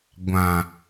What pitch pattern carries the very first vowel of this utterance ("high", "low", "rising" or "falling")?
low